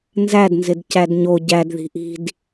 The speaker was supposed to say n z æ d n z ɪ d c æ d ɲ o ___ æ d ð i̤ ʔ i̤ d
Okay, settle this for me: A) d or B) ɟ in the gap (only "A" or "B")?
B